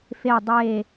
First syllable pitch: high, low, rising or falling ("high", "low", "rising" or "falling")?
low